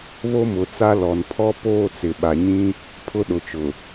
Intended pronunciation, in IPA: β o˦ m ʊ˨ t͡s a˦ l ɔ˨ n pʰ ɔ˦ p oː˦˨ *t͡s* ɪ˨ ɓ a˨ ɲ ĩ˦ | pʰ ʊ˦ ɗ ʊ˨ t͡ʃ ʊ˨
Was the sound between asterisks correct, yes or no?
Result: yes